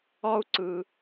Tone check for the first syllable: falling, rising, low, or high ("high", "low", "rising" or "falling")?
high